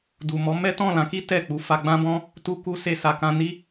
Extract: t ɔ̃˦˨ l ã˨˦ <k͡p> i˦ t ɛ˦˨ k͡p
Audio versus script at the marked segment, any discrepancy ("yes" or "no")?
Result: yes